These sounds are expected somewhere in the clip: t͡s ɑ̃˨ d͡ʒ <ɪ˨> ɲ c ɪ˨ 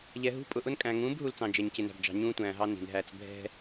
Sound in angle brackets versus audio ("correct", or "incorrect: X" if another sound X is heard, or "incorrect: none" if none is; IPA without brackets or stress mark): incorrect: ɛ˨